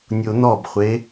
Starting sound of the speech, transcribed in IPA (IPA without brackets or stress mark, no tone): nʲ